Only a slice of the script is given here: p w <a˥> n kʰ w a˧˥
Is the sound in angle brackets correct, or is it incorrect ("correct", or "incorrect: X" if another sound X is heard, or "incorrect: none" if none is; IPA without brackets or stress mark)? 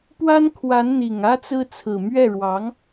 correct